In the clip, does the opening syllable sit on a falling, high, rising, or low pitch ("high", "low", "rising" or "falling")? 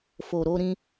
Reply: low